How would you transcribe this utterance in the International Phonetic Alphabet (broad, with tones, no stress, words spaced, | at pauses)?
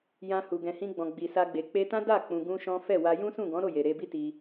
jã˧hu˨ ɡɛ̃˨hĩ˧ɡ͡bɔ̃˨ ɡ͡bi˨sa˧ɡ͡be˨ k͡pe˧tã˦da˦˨ k͡pũ˧ɡũ˦ʃɔ̃˦ fɛ˦˨wa˧ jũ˦sũ˦˨ɡɔ̃˨˦ ɾo˦˨je˨ ɾe˧bi˦ti˧